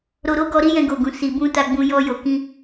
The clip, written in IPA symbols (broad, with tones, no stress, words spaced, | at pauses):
ɾo˧ɾo˦ɡɔ˧ɾi˦ jɛ̃˧ɡo˨ɡũ˨ si˨bũ˧ ta˧ɡ͡bũ˧ jɔ˧jo˨ kĩ˧